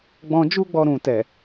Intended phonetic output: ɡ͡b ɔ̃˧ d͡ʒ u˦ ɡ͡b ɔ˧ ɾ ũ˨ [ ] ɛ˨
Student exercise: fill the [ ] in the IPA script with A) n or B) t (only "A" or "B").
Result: B